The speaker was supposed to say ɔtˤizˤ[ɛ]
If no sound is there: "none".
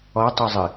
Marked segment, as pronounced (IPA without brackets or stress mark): ɨ